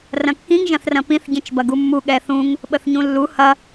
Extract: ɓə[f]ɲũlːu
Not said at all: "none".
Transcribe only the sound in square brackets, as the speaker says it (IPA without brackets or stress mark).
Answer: θ